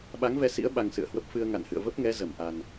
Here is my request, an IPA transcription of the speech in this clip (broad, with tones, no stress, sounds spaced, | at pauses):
ɓ a˨˦ ŋ v ɛ˧ s ḭ˧˥ ə̯ ɓ a˧ ŋ s ɨ̰˧˨ ə̯ h w ə˦˥ p̚ f ɨ˧ ə̯ ŋ a̰˧˨ n h ɨ̰˧˨ ə̯ v ə˦˥ p̚ ŋ ɛ˨˦ z ə˧˩ m ʔ a˨˩ n